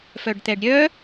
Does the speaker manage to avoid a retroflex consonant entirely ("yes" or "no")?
no